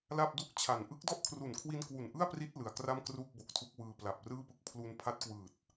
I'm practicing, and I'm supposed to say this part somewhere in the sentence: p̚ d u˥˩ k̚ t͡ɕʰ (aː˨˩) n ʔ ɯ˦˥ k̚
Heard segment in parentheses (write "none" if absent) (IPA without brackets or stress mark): a˨˩